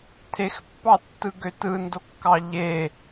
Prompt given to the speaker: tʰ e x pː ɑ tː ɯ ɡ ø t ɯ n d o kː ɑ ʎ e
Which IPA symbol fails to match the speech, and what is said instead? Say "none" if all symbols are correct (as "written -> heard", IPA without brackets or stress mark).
none